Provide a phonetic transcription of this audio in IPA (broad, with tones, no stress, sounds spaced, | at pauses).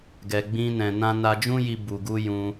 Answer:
ɡ ɛ˨ ɡ͡b ĩ˧ n ɛ̃˨ n ã˧ n a˧ d͡ʒ ũ˦ j i˧ b u˨ ɡ u˧ j ũ˧